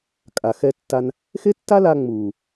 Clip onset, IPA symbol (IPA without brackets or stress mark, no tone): kʼ